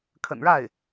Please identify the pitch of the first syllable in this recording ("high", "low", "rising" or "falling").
low